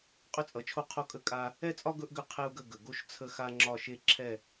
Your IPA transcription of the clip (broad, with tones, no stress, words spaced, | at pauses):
qʼʏ˥t͡sʼʌ˨˦t͡ʃʰo˥˧ qʰo˥˧kʼə˥˧ kʼa˥ | ɛ˥˧t͡sʼɒ˥ ɡɵ˥ʔɡʏ˥˧ qʰe˥u̯ɡə˥˧ ɡə˨ɡo˥ʃ t͡sʰə˥xa˥ŋ͡ǁɒ˥˧ ʃe˥˧ǁʰɛ˥˧